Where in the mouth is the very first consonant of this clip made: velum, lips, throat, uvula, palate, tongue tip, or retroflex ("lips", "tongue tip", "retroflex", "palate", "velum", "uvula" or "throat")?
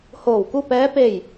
throat